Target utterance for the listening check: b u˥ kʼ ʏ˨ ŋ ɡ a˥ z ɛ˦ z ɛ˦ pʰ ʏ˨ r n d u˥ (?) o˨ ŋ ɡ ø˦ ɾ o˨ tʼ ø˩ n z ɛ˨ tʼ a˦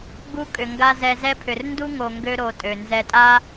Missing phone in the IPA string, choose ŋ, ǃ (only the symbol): ŋ